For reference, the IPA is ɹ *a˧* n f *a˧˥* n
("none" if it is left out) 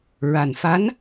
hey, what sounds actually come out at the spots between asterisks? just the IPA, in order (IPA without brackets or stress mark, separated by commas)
a˨˩, a˧˥